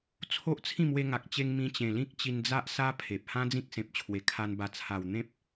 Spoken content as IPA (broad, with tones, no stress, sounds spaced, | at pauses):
t͡sʰ o˦ ʔ t͡sʰ ĩ˥˧ m w e˧ ŋ a˨ k̚ t͡ɕ e˧ ŋ m ĩ˧ t͡ɕ ẽ˨˩ l ĩ˦ k̚ t͡ɕ i˧ n d͡z a˦ ʔ s a˦ pʰ e˨ p̚ h ã˦ d͡z ĩ˦ k̚ s ẽ˨ p̚ t͡ɕʰ w e˨˩ kʰ a˧ n b a˨˩ t͡sʰ a˨˩ w n̪ ẽ˦ p̚